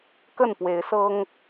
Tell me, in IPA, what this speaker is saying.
k ə˥˨ n p w e˨˦ ɪ̯ s ɤ˦ ŋ

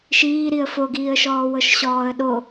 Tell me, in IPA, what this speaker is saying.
ʃ iː ɾ i ə̯ f o ɡ iː ə̯ ʃ ɔː w ɤ ʃ ɕ ɔː ə̯ ɗ o

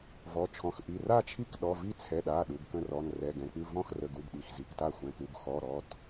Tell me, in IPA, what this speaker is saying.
v ɔ˩˧˩ t͡ʃʰ ɔ̃˩˧˩ x ʔ i˩˧˩ r a˥˩ t͡ʃʰ i˥˩ k ɗ ɔ˩˧˩ v i˥˩ t͡sʰ ɛ˩˧˩ ɗ a˩˧˩ ɗ u˩˧˩ ɡ k ə̃˥˩ r ɔ˩˧˩ n r ɛ˩˧˩ ɡ ɛ̃˩˧˩ k͡p ʉ˥˩ v ɔ̃˥˩ x r ə˩˧˩ ɡ u˩˧˩ ɡ ɗ i˩˧˩ x z i˩˧˩ k t a˥˩ xʷ ɛ̃˩˧˩ k u˩˧˩ ɡ x ɔ˩˧˩ ɾ ɔ˩˧˩ t

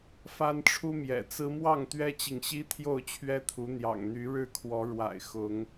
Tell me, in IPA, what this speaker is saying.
f a˦ n ʈ͡ʂʰ u˦ m j ɛ̰˨˩ t͡s ɹ̩˦ m w ɑ˥˨ ŋ t̪ ɥ ɛ˦ t͡ɕ i˨ ŋ ɕ i˦ t̪ʰ j o˥˨ ʊ̯ t͡ɕʰ ɥ ɛ˦ t̪ʰ u˨˦ n̪ j ɑ̰˨˩ ŋ n̪ y˨˦ ɻ ɻ̩˥˨ kʰ w ɔ˨˦ ɻ w a̰˨˩ ɪ̯ x ʊ˨˦ ŋ

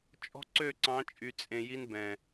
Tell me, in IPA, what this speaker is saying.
t͡ʃʼ ɔ̤˦ ǀ ø˦˨ ǀ ɑ̃˨˦ t͡ʃʼ y˨ t͡sʼ ẽ˨ j i˧ n b ɛ̃˨

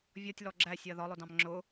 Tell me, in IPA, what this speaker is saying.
vʲ ɔ tʲ l ɔ ɡ͡ǁ æ sʲ ɜ ð ɒ lˠ ʊ d ɑ̃ m ŋ͡ǁ ʊ

